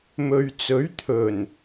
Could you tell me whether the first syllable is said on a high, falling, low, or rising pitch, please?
low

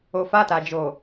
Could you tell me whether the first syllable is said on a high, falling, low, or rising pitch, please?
low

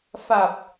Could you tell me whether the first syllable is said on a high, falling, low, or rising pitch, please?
low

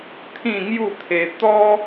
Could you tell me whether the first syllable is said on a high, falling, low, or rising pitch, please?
falling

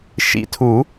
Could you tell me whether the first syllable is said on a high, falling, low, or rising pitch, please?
rising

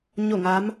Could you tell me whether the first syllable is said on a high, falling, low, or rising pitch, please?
falling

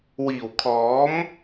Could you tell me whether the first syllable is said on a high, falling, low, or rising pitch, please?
low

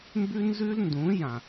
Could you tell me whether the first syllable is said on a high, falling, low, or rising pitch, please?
high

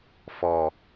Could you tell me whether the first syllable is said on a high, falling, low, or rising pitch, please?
low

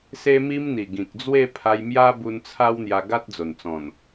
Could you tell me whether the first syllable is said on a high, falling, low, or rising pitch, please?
high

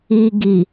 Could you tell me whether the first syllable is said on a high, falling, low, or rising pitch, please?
low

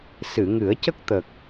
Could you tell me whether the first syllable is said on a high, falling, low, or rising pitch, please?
low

